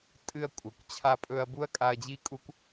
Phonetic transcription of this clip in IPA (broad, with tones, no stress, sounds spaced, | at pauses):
tʼ ɨ˧ ɐ̯ kʷʼ ɐ˨ kʷ t͡ɕʰ a˧ pʼ ɵ˧ ɐ̯ b u˦ ɐ̯ kʼ a˧ ɐ̯ d͡ʑ i˦ kʼ u˦ kʷ